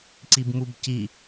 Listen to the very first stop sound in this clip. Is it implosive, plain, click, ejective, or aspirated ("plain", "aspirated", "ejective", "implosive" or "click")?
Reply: click